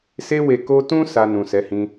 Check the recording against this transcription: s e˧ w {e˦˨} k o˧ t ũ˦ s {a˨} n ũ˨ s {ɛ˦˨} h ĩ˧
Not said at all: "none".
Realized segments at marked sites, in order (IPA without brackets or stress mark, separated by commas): e˨, a˧, ɛ˨˦